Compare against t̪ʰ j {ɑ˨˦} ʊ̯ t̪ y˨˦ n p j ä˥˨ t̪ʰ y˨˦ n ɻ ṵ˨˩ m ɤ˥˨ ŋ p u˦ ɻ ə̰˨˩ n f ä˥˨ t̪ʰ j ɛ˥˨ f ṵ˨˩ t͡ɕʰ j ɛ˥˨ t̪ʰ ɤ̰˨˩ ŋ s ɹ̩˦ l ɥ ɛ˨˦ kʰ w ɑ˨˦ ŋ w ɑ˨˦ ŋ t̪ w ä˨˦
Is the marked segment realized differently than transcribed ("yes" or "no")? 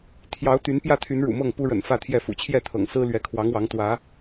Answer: no